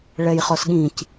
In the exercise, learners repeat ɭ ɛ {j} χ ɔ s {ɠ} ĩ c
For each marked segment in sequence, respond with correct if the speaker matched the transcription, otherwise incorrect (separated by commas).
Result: correct, correct